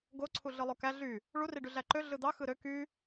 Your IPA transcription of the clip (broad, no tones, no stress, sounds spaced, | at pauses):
ɡ o ǀʰ u ɮ ɯ lˠ o k æ ɮ y | ɭ u r i ɖ y ɮ æ ǃ ø ɮ ɯ d̪ ɑ x ɯ ɾ ø k y